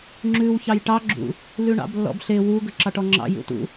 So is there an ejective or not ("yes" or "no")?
no